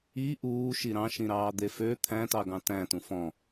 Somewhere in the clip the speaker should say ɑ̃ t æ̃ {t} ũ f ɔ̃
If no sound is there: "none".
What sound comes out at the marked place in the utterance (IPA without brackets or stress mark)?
t